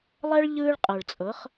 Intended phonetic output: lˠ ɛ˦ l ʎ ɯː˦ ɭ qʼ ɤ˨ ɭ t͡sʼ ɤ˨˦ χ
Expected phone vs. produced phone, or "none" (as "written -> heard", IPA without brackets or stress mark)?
l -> ɭ